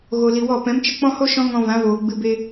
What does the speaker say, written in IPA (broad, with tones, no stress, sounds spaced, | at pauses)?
ɣ o˨ l i˨ w ɔ˦˨ p ɛ̃˨˦ m t͡ʃ ə˧ k͡p ɔ̃˦ h o˦ ʃ ɔ̃˦ ŋ ɔ̃˧ v ã˨˦ v oː˨ ɡ͡b ɨ˧ b e˦